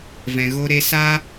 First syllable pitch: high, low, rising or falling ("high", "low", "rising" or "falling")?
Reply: low